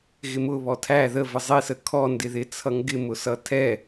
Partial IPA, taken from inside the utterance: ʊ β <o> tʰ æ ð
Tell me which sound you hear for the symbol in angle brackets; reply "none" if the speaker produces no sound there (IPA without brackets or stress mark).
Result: ɔ